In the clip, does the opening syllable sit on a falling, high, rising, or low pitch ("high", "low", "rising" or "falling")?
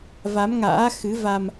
rising